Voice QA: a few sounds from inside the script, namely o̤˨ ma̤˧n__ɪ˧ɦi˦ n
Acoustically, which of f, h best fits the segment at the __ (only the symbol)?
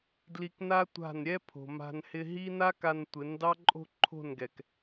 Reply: h